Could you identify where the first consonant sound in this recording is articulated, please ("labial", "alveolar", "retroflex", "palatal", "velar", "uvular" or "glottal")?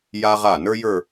palatal